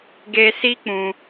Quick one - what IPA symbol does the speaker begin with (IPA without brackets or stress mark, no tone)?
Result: ɡ